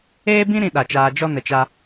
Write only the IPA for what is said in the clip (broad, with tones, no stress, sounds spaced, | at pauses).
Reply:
eː˦ b ĩ˦ ɾ ĩ˧ ɗ a˨ t͡ʃ aː˧ d͡ʒ ɔ˦ n ə˨ t͡ʃ a˧